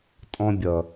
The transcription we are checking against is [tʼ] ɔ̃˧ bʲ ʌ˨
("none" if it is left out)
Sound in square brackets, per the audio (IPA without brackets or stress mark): tʼ